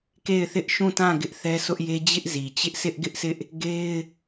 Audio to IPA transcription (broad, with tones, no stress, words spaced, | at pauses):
ke˦˨ɪ̯θɪ˦ʔʃũ˦˨tã˦˨ ɡɪ˦ʔθɛ˦sʊ˦ʔje˦ d͡ʑɪ˦ʔzi˨ t͡ɕɪ˦ʔsɪ˦ʔɡɪ˦ʔsɪ˦ʔ | ɡe˦ɪ̯